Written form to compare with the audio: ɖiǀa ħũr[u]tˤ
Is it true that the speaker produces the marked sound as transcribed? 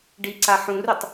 yes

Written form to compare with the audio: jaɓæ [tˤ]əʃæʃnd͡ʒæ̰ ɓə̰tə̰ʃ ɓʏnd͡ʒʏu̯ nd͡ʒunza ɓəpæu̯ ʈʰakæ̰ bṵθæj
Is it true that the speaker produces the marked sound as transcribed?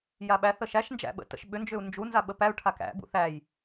no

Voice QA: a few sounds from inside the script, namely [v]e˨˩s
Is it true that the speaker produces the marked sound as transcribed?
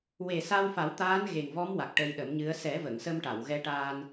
no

